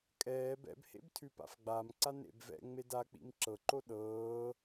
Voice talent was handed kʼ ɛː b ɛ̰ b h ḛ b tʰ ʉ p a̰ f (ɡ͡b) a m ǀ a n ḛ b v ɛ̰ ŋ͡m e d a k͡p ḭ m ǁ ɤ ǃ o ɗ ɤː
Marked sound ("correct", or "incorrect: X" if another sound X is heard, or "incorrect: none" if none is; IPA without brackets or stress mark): correct